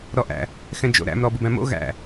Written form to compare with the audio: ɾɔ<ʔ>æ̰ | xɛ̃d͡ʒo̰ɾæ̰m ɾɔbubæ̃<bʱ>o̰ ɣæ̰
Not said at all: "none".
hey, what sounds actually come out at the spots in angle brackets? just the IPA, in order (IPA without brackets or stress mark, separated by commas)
ʔ, m